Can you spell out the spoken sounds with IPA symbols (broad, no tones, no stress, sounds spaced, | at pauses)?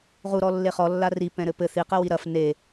ʁ u ɾ ɔ lː e χ ɔ lː a r i p ɛ̃ ɾ ɘ p ɘ θ i q ɘ w i ɾ ɐ f n e